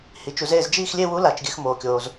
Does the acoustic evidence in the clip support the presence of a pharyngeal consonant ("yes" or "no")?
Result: no